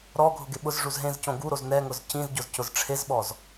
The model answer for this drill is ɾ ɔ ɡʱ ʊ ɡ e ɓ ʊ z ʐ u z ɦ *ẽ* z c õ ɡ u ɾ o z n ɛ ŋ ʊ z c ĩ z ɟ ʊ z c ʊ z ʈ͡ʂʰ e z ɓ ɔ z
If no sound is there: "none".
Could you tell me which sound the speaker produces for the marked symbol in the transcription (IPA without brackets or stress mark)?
ẽ